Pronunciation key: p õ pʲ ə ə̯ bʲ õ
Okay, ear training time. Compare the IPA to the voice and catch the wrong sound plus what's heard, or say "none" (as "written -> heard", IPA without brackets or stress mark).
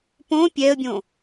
ə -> ɛ